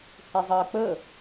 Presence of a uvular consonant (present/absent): absent